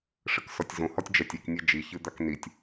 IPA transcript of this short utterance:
ʂ ɘ k s ɔ tʲ z õ h ɔ tʲ d͡ʒ ɛ tʲ e k nʲ e d͡ʒ i ç ɨ d̪ a k n i tʲ

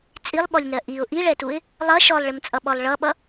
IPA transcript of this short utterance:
t͡sʼ i lˠ ɓ ɔ lʲ n ɜ ʔ i ʊ̯ ʔ i ɭ ɛ t u ɪ̯ | lˠ ʌ ʃ ɔ lˠ ɭ ɪ m t͡sʼ ʌ ɓ ɔ lˠ ɭ ʌ ɓ ʌ

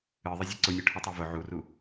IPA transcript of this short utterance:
ɨ ðˤ ɪ zʲ ʊ ǀ ʊ nʲ ʊ ʈʰ ɨ tˤ u v ʊ ʕ u r u

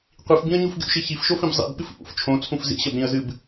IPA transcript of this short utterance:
qʷ i f b ĩ ə̯ ɲ u f ɡʲ ṵ ʃ i ç i f ʃ o f ĩ b zˤ ḭ b ɓ ɨ f ʔ ṵ f t͡ʃʰ õ t͡sʰ ũ f z ḭ ɕ ɐ b ɾ ĩ ə̯ z ɨ b

